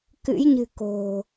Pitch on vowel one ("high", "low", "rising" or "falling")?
rising